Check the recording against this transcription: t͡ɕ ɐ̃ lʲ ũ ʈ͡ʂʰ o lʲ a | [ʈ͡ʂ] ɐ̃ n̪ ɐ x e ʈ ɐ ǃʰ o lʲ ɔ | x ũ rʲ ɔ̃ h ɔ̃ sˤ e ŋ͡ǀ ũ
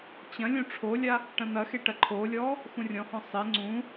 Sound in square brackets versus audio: incorrect: ʈ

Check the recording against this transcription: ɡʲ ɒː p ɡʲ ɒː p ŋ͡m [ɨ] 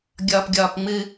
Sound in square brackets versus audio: correct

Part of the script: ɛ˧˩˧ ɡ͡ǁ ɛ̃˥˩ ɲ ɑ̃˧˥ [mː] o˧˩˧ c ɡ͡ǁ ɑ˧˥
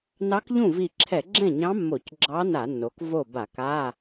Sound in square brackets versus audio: correct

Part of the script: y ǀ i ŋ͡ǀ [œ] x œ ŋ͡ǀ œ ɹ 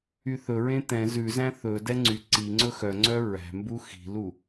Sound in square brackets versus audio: incorrect: ɵ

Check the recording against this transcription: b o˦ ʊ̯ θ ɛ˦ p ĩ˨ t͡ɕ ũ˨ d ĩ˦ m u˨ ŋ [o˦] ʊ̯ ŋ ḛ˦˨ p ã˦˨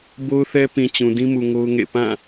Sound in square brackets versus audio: correct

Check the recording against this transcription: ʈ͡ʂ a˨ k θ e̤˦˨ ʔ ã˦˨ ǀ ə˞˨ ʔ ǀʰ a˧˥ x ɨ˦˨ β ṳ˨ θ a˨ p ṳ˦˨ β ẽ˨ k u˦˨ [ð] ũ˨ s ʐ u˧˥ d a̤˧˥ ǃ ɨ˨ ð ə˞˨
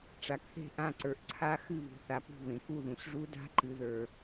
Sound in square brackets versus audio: correct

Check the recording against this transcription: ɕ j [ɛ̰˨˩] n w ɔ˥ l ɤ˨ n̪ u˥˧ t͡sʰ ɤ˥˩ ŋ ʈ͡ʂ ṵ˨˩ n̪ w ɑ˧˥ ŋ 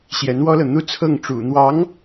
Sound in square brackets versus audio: incorrect: ɛ˧˥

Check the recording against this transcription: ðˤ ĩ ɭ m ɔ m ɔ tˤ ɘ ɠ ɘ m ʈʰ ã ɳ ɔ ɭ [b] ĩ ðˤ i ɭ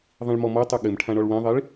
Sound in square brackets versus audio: incorrect: w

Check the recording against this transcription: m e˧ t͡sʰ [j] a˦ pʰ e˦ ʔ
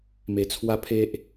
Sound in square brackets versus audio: incorrect: w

